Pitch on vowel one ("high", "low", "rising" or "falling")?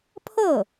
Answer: falling